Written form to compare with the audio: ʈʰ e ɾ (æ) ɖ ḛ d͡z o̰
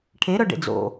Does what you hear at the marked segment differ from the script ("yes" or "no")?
yes